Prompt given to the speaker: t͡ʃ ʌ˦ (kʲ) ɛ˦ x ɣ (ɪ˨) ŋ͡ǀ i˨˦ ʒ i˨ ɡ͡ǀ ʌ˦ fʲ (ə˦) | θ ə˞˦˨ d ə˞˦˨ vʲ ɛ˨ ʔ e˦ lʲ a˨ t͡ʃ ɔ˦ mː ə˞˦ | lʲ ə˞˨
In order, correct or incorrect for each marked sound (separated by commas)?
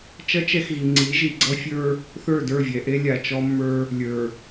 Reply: incorrect, incorrect, incorrect